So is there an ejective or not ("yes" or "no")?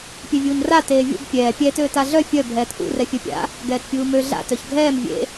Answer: no